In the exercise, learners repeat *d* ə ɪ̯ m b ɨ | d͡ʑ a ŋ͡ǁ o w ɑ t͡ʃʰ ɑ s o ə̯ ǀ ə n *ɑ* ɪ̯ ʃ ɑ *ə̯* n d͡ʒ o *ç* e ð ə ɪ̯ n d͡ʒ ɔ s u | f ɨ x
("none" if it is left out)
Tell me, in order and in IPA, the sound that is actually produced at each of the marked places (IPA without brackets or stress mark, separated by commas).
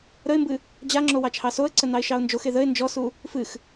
ɾ, ɑ, ʊ̯, x